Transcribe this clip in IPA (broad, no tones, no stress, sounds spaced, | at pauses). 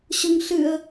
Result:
ɕ ʊ ŋ ɬ ɨ ə̯